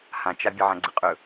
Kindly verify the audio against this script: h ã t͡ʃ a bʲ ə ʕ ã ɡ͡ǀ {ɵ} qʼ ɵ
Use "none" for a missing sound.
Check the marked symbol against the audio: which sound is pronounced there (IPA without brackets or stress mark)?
ə